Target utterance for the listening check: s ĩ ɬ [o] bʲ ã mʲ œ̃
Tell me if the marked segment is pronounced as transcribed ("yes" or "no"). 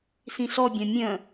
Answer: no